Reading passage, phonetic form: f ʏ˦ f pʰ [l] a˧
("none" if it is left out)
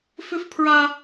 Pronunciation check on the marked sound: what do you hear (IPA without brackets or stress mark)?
ɹ